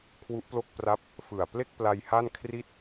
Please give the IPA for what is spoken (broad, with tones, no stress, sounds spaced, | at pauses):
kʰ w u˦˥ ʔ p l o˥˩ k̚ p r a˥˩ p̚ | f ɯ˨˩ a̯ p l e˥˩ k̚ p l a˧ j h a˥˩ n kʰ r i˥˩ t̚